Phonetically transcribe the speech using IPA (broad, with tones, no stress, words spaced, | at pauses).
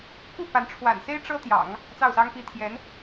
ku˥˩ pa˧˥n ʈ͡ʂʰwa̰˨˩nse˥ɪ̯ ʈ͡ʂɤ˥t̪jɑ̰˨˩˦ŋ | t͡sɑ˥˩ʊ̯sɑ˥ŋpi˥ t̪ʰjɛ˧˥n